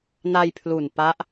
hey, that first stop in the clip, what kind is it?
aspirated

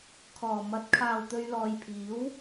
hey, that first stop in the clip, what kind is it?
aspirated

